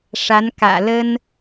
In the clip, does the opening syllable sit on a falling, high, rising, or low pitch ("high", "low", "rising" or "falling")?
rising